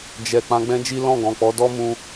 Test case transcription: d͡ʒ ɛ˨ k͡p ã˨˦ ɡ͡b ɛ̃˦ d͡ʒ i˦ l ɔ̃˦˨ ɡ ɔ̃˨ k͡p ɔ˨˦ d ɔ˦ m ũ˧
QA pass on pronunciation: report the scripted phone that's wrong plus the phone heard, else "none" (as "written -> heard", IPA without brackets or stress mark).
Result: none